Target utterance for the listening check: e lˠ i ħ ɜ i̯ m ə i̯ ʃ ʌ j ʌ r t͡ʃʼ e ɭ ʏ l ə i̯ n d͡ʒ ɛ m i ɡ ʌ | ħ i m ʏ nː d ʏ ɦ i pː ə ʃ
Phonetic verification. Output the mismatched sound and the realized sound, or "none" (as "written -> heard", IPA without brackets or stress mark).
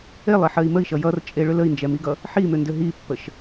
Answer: nː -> n